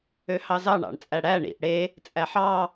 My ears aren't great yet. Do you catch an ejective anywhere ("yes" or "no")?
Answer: yes